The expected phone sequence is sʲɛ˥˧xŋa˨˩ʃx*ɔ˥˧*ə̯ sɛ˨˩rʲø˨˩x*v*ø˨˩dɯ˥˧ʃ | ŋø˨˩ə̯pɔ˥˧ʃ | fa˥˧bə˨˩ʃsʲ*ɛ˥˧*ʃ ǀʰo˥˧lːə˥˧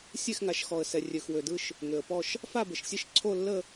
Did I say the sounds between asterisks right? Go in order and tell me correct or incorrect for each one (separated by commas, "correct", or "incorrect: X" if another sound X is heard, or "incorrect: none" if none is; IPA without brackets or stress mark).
incorrect: ɔ˨˩, incorrect: w, correct